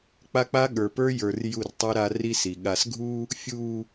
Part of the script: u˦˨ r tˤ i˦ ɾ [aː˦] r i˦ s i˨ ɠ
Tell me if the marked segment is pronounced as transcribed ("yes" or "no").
no